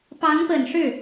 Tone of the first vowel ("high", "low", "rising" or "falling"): rising